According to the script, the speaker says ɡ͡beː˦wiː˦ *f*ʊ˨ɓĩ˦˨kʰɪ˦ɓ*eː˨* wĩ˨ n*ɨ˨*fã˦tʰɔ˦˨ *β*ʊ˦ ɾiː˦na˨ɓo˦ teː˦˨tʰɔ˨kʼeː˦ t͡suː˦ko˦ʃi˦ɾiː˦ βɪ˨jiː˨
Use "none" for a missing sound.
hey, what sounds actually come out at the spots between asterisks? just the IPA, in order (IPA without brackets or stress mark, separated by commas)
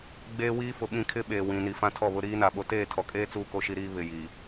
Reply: f, eː˨, i˨, β